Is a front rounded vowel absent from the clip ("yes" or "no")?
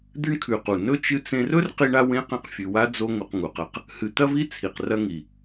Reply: yes